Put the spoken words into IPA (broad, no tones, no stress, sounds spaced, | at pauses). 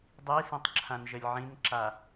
dˤ i s ĩ tˤ ǁʰ ã n ʒ ə lʲ ʕ ĩ n ǁ a